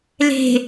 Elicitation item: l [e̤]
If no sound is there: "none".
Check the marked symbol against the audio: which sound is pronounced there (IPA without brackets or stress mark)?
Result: e̤